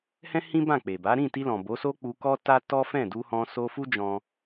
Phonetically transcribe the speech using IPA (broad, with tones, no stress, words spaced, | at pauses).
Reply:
hɛ̃˦ hĩ˦bã˦˨ k͡pe˨ba˨˦ ɾĩ˦˨ti˧lɔ̃˨ bo˨˦so˦ k͡pu˧kɔ˦ta˦ tɔ˦fɛ̃˦˨ du˧hɔ̃˧ so˧fu˦d͡ʒɔ̃˧